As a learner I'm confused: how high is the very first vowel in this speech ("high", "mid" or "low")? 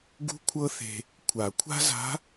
high